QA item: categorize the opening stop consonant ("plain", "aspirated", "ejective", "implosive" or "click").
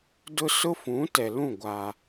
plain